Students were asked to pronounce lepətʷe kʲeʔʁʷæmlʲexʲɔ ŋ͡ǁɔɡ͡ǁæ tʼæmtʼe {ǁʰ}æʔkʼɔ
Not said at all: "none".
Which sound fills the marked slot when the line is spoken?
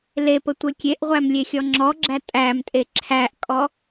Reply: ǁʰ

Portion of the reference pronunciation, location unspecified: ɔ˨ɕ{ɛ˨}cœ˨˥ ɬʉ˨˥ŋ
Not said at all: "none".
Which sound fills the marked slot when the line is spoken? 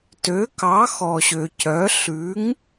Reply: ø˨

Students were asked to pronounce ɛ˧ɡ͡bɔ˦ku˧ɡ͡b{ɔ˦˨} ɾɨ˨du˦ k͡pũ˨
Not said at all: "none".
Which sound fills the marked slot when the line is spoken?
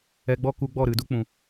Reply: ɔ˦˨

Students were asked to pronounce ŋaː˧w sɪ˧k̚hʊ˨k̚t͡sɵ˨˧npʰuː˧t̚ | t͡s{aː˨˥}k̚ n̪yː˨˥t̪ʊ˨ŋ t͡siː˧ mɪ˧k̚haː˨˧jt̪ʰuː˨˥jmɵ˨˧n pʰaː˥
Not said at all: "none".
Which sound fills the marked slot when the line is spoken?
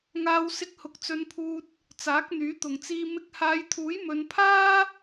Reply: aː˨˥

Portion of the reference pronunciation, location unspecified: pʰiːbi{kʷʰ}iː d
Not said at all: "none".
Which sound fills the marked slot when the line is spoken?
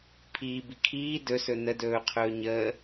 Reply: kʰ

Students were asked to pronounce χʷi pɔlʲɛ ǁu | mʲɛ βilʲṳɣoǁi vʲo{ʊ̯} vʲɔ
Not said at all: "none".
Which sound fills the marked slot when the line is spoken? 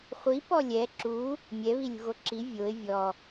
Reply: ɪ̯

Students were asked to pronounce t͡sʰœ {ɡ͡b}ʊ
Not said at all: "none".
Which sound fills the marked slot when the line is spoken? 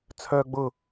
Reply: ɡ͡b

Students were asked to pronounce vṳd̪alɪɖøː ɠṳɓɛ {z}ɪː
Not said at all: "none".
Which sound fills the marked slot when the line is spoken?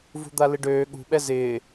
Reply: z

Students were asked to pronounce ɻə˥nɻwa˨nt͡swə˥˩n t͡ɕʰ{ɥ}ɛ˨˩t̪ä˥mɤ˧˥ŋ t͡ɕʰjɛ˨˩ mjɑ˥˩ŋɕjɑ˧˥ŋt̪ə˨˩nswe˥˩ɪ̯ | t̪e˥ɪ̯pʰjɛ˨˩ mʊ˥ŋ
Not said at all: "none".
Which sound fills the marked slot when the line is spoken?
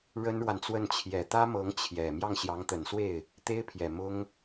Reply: j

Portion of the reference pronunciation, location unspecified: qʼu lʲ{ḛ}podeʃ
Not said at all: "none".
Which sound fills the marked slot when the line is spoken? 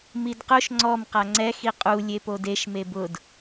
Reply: e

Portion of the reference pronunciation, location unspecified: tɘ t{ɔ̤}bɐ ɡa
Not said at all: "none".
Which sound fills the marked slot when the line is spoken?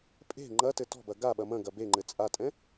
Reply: ɔ̤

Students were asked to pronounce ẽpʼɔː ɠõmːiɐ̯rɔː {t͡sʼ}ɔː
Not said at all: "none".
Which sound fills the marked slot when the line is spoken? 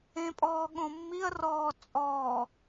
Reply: t͡sʼ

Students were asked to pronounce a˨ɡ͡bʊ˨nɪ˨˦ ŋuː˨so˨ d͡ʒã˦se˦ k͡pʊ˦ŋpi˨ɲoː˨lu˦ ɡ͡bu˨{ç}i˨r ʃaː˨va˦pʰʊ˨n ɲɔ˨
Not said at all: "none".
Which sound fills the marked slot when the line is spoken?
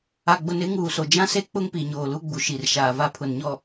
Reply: ʃ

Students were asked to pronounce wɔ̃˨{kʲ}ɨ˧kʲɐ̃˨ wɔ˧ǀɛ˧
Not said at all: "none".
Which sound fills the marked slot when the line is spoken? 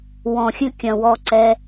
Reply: xʲ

